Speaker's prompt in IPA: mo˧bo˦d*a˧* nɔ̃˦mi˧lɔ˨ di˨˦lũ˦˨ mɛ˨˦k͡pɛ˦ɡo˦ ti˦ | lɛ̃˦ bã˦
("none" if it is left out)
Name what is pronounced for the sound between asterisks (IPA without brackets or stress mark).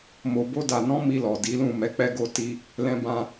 a˧